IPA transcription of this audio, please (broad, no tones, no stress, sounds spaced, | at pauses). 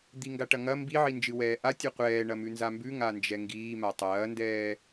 d̪ i ŋ ɡ a ʈ ɐ ŋ ɐ m b i ʕ i n d͡ʒ ɨ w ɛː ʔ a tʲ ɨ qʷ ɛː ɳ ɐ m ʉ n z a m b ʉ ŋ a n d͡ʒ ɛ ŋ ɡ iː m a tˤ ɐː n d ɛː